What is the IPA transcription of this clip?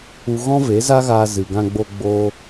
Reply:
u˦ ɣ ɔ̃˦ v e˨˦ z a˦ ɣ aː˧ z ɨ˨ ɡ ã˧ ɡ͡b o˧ ɡ͡b oː˦

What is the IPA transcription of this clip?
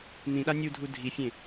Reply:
n ĩ ɗ a nʲ u dʱ u dʱ i fʲ ẽ

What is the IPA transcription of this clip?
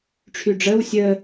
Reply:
ʈ͡ʂʰ y ɖ͡ʐ əː w sʲ əː

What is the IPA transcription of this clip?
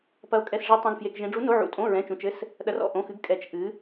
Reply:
p ɐ˧˥ o̯ kʼ ɛ˧˥˧ s ʐ i˧˥ tˤ ẽ˧˥˧ ɡ f j e˧˥˧ k ʒ ẽ˧˥ ɖ͡ʐ u˧˥ n o˧˥˧ ʕ ṵ˧˥˧ tʼ õ˧˥˧ ɹ ɛ̃˧˥˧ t͡ʃ ũ˧˥˧ t͡ʃ ɘ˧˥˧ s | ɗ ɐ˧˥ r ɔ̰˧˥˧ ʔ õ˧˥˧ x ɨ˧˥ ɡ kʼ ɛ˧˥ t͡ʃ ʔ ɨ˧˥

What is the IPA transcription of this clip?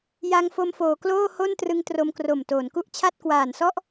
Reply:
j a˧ ŋ f o˧ m f oː˩˦ k l oː˥˩ h o˥˩ n t r ɯ˧ ŋ t r o˧ m k r o˨˩ m t oː˩˦ n k u˥˩ ʔ t͡ɕʰ a˥˩ t̚ k w aː˨˩ n s ɔ˥˩ ʔ

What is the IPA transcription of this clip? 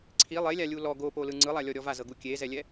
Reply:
ǀʰ i lˠ e lʲ a lʲ u l ɔ ɡ o p o l ɯ ŋ͡ǀ ɯ lˠ a lʲ ɔ ɾʲ ɔ v a z ɤ ɡ u kʲ e z ɛ lʲ ɛ

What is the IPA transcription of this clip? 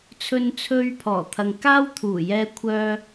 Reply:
t͡sʰ ɵ˧ n t͡sʰ ɵ˧ ɥ pʰ ɔː˨˩ t̪ʰ ɐ˨ ŋ k aː˥ w t̪ʰ uː˨˩ j ɛː˧ kʷʰ œː˧

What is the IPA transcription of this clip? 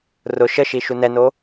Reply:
r ʊ ʃ ə ʃ i ʃ u n ɛ n o

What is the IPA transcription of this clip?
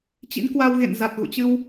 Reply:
t͡ɕ ḭ˧˥ n k w a˧ w ɣ ḛ˧˨ n z a˨˩ t̚ ɣ ṵ˧˨ t͡ɕ ɨ˧ w

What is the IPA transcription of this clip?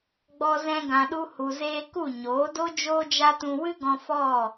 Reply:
ɡ͡b ɔ˧ z ɛ̃˧ ɡ ã˨ ɗ u˧ h u˨ z eː˧ k u˦˨ ɲ oː˨˦ d o˦ d͡ʒ oː˦ d͡ʒ a˦ t ũ˧ w ɨ˦ ɡ ɔ̃˧ f ɔ˦˨

